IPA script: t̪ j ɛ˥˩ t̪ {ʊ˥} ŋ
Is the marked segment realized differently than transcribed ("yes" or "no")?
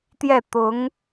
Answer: yes